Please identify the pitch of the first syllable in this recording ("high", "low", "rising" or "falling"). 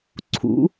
rising